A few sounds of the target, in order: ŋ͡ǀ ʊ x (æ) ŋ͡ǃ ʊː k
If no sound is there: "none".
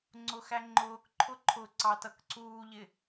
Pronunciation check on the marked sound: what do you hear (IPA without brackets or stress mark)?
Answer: æ